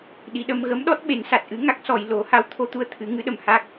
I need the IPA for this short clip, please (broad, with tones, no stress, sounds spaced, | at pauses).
ɗ i˨˩˨ ɗ ə˧ m ɣ ə˧˥ m ɗ ɔ˦˥ t̚ ɓ e˨˩˦ n s a˨˩ t̚ ʔ ɨ˧˥ ŋ a˦˥ k̚ s ɔ˨˩ j l o˨˩˦ h a˧˥ w t̪ʰ o˧ t̪ u˧ ə̯ t̪ʰ ɨ˨˩˦ ŋ ɨ˧˥ ɗ ə˨˩˨ m h a˦˥ k̚